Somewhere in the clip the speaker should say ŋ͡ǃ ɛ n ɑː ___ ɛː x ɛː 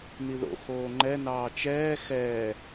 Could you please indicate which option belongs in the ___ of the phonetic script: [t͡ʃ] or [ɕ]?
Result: t͡ʃ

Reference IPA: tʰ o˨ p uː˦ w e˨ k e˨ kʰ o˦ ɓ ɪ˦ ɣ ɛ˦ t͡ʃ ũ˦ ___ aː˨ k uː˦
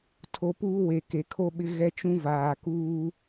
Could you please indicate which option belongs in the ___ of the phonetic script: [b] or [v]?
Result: v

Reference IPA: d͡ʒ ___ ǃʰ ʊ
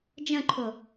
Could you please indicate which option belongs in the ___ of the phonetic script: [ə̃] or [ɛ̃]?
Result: ə̃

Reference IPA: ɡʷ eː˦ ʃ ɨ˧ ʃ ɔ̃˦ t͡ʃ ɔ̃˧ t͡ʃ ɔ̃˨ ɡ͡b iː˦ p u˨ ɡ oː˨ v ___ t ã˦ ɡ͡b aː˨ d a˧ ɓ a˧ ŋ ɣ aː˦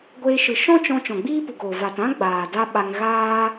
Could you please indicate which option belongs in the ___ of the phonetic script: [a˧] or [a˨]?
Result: a˨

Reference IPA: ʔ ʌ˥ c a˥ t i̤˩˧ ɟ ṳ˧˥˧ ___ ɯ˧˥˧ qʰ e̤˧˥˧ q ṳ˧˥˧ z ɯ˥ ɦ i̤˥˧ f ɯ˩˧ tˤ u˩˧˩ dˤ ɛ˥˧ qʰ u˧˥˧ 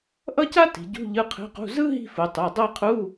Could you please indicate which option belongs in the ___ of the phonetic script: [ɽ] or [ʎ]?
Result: ʎ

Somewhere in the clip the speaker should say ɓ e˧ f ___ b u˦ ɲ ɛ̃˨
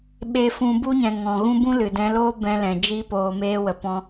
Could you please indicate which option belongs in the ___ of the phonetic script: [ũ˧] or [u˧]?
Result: ũ˧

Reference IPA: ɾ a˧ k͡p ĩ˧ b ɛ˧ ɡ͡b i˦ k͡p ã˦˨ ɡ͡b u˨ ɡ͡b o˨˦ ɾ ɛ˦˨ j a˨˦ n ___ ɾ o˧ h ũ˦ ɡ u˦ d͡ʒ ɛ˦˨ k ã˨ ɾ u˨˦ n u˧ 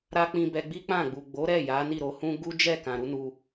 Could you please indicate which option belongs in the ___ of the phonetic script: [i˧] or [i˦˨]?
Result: i˦˨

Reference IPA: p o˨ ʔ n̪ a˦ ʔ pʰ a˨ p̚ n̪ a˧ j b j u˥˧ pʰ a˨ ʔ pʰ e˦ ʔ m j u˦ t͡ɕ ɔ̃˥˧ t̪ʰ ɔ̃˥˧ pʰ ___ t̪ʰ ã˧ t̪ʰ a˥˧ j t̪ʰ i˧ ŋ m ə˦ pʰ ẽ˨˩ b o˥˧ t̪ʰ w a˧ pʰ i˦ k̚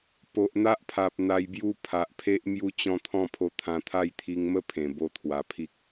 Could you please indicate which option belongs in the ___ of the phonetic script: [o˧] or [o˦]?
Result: o˧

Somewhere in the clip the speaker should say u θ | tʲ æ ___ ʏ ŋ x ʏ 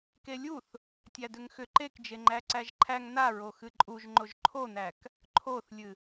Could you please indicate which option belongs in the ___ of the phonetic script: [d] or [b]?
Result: d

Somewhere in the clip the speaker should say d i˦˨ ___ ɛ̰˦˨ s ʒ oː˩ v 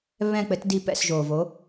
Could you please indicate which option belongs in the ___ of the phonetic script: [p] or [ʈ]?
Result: p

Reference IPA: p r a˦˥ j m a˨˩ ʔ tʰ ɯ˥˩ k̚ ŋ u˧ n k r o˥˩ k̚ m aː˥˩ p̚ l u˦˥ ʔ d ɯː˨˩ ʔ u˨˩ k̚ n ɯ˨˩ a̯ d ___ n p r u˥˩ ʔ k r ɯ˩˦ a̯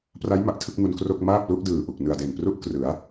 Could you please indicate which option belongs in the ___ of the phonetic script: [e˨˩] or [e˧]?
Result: e˨˩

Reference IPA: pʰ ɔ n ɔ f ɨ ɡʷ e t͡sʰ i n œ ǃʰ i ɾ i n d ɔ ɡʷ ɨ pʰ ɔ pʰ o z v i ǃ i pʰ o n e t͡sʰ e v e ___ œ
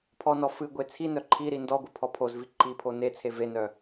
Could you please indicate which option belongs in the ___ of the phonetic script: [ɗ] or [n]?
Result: n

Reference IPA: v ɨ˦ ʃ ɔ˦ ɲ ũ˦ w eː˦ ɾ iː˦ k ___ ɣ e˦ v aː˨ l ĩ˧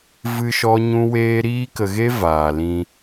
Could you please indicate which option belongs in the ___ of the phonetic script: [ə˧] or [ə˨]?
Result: ə˧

